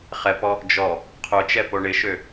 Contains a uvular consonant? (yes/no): yes